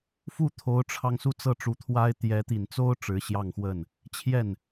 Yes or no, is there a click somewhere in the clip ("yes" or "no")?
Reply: no